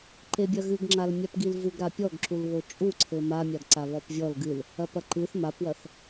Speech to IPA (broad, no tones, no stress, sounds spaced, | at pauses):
ǃ e bʲ ɐ ɣ ɨ ɡ ŋ͡ǁ a l mʲ a p ɡ i l v u ɡ ɾ a pʲ ɔ ɡ ǁ u l β o t͡ʃʼ u ǀʰ ɘ m a mʲ a ɡ ǀ a β ɔ p vʲ ɔ l ɡ ɨ l | ɐ p ɐ ǃ ɨ θ m a p w ɐ θ